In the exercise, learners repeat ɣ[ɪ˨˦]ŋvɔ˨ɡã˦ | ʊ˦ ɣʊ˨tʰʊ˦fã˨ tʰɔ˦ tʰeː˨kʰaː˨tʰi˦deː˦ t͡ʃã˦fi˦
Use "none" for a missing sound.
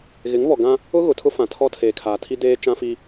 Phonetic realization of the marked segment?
ɪ˨˦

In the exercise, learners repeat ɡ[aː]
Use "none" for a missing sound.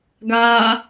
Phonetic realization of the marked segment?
aː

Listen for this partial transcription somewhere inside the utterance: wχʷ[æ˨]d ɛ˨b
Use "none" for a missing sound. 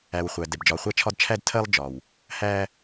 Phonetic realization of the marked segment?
æ˨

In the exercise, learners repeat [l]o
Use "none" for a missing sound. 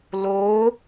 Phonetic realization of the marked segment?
l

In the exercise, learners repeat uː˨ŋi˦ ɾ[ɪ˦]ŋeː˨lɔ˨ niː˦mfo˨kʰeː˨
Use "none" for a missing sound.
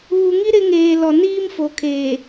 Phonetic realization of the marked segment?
ɪ˦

